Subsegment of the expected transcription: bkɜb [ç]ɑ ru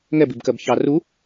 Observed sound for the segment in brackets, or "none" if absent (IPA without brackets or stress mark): ç